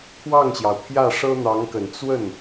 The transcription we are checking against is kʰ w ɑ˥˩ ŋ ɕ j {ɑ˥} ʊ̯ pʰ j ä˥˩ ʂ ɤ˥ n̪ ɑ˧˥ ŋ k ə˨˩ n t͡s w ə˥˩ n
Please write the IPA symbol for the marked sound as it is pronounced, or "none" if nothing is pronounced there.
ɑ˩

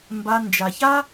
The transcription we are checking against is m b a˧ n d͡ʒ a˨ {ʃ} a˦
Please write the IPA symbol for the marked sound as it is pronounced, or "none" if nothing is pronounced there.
ç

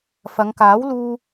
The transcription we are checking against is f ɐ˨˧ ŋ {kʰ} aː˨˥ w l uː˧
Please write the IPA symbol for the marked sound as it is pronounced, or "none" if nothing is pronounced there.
k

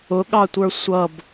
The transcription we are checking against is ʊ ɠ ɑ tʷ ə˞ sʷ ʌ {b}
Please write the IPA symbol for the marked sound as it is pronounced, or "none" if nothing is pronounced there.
b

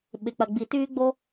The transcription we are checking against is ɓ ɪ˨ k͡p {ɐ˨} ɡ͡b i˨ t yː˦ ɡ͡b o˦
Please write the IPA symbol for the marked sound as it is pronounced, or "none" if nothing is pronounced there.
ɐ˨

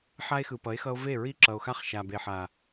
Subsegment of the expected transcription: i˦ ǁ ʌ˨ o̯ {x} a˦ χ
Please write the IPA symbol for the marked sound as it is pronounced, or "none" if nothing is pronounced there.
x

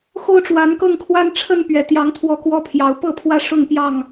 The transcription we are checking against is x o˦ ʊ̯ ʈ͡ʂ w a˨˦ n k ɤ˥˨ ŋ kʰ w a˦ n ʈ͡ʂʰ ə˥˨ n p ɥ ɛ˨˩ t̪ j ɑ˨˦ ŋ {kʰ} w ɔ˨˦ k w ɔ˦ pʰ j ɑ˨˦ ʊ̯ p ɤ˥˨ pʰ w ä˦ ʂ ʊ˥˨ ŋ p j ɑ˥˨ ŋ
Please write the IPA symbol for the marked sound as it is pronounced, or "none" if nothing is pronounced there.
t̪ʰ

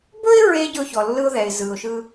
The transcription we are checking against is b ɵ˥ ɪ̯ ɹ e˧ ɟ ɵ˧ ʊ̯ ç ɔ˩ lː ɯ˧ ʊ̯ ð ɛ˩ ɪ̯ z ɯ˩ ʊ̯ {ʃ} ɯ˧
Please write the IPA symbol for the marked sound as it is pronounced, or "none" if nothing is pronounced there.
ʃ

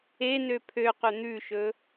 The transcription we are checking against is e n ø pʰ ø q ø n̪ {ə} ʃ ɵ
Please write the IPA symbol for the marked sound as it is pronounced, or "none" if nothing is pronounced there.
ʉ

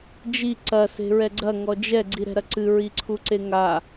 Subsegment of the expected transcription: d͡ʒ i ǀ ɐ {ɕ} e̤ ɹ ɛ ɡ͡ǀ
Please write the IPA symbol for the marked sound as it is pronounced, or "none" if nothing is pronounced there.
s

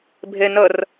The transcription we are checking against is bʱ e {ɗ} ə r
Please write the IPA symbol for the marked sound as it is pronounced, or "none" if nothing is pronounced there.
n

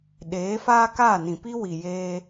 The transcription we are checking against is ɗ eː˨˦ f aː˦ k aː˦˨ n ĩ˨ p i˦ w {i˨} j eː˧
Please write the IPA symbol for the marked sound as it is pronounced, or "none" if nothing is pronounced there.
i˨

